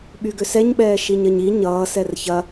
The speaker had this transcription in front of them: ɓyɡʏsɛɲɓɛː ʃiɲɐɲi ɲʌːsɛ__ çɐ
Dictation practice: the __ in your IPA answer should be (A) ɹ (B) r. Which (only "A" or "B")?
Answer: B